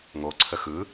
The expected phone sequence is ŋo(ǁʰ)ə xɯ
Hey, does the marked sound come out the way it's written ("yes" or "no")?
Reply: no